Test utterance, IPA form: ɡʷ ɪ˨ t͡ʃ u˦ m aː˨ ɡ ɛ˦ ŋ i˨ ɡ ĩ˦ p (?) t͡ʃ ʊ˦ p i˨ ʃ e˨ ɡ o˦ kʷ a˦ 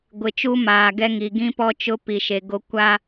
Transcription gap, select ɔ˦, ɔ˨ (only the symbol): ɔ˦